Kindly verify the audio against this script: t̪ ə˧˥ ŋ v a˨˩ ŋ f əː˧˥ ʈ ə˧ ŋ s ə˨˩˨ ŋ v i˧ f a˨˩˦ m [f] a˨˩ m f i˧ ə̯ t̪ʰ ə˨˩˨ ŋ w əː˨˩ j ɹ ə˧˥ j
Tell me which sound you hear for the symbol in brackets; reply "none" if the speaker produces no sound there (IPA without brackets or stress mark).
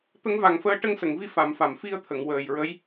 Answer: f